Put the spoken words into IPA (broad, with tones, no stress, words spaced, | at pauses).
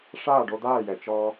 ʂaː˥˩ɖo˧d̪aː˥˩jɛ˩ t͡ʃɔː˧